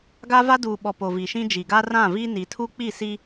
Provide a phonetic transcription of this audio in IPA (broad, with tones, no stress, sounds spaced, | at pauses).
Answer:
ɡ a˦ v a˦ d uː˨ ɓ ɔ˨ p o˨ v i˨ ʃ ĩ˦ d͡ʒ i˨ ɡ a˦ r ã˦˨ v i˦ n i˨ tʰ u˦ k͡p i˦˨ s i˦